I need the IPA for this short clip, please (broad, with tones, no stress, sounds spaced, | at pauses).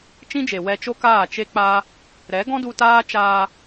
t͡ʃ ĩ˦ d͡ʒ e˨ w ɛ˧ t͡ʃ o˦ k aː˦˨ t͡ʃ e˦ k͡p a˦ | ɾ ɛ˨˦ ɡ ɔ̃˦ d u˧ t aː˦ t͡ʃ aː˧